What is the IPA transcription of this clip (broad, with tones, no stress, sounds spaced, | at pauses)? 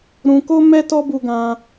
ɾ ũ˧ k o˦ m ɛ˦ t ɔ˦ b u˦ ɡ ã˦